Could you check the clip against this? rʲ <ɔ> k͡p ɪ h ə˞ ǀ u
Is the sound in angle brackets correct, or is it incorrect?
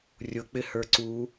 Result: incorrect